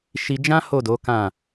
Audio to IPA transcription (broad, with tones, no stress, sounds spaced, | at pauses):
ʃ i˧ d͡ʒ ã˦ h o˦˨ d o˨˦ k ã˦˨